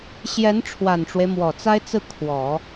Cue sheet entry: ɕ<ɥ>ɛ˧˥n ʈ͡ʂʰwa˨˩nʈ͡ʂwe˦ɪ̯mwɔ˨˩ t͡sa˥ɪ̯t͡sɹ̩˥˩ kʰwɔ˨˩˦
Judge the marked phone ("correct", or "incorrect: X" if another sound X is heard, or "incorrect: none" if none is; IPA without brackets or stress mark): incorrect: j